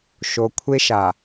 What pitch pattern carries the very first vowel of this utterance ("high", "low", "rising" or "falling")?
low